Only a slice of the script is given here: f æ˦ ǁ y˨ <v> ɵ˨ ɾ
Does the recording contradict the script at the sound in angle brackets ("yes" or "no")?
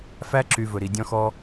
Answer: no